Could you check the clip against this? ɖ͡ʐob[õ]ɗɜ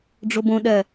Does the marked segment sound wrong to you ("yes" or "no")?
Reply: no